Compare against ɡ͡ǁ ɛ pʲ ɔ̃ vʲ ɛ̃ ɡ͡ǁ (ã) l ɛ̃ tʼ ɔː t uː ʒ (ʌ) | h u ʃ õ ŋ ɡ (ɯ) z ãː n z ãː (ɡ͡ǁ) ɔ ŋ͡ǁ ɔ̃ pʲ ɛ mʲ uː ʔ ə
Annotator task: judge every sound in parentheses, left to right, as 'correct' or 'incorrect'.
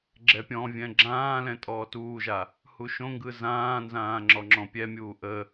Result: incorrect, incorrect, correct, incorrect

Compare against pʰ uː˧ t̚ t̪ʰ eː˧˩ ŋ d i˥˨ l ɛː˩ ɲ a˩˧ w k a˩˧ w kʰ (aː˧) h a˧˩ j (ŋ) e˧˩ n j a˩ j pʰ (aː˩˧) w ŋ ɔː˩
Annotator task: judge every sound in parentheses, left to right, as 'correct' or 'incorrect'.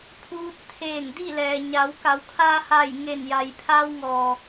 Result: correct, correct, incorrect

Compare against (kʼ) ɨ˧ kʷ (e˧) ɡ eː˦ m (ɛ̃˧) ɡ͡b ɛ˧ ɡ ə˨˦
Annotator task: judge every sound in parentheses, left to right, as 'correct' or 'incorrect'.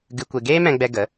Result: incorrect, correct, correct

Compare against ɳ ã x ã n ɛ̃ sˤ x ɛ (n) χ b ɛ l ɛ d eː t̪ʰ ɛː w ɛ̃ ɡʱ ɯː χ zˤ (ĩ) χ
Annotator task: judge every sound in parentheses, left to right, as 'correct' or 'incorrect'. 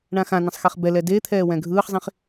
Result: incorrect, correct

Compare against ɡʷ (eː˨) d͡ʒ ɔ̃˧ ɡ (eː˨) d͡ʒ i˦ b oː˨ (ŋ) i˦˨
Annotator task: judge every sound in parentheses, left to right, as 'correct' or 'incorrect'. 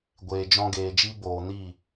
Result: correct, correct, incorrect

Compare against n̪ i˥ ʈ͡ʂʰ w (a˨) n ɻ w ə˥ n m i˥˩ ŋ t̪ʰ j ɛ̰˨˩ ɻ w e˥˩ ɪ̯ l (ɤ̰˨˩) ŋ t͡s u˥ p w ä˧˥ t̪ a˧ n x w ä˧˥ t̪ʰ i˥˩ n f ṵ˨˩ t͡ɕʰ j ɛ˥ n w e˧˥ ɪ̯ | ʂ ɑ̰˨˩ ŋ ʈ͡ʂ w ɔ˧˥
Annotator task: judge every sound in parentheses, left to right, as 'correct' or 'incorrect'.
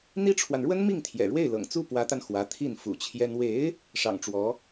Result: correct, correct

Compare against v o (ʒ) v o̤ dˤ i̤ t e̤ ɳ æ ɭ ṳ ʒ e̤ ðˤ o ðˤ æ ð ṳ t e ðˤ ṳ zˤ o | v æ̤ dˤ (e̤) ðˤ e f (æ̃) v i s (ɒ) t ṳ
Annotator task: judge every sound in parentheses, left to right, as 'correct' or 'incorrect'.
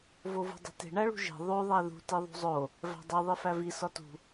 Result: incorrect, incorrect, incorrect, correct

